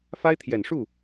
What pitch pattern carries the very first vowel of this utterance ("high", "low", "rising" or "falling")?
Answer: high